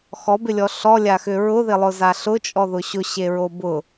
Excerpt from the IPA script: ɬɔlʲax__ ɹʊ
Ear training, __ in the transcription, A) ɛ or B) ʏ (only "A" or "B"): B